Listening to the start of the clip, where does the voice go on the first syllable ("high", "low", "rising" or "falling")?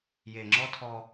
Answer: low